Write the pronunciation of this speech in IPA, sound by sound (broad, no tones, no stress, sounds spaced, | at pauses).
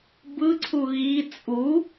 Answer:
b ɯ ǀʰ u ɣ i t͡sʼ u